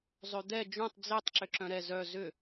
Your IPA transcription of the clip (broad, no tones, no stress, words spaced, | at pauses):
zˤød̪ɛ d͡ʒũtˤ d͡zetˤ ǁʏǁœ̃ɾɛ zœ zʏ